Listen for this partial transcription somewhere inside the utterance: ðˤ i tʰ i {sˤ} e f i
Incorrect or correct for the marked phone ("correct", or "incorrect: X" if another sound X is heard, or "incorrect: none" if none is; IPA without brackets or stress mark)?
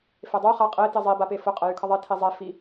incorrect: zˤ